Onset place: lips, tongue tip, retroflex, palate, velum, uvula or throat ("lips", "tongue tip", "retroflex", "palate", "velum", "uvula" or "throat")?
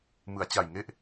lips